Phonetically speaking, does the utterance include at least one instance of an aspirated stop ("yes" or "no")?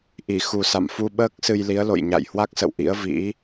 no